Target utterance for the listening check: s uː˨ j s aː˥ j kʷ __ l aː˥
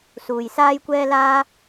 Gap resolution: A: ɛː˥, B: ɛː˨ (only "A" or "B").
A